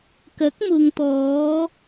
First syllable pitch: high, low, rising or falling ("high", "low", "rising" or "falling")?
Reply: rising